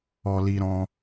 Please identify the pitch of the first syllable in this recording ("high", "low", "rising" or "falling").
low